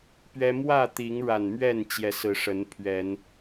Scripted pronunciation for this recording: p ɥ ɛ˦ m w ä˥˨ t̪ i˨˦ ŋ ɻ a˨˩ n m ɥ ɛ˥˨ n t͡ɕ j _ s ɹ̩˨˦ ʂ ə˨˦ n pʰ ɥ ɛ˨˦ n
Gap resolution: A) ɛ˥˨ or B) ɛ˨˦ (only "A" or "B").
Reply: B